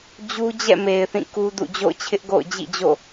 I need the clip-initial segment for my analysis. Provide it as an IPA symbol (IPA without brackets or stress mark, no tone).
d͡ʑ